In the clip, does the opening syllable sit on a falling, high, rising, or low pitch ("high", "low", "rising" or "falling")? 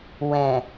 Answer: low